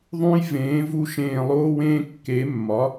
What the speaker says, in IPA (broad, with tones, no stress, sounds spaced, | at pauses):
ðˤ ũ˦ j v ẽː˨˥ v u˦ ʃ ẽː˦˨ lˠ oː˦ w ẽː˦ kː e˨˥ mː ɒ˨˥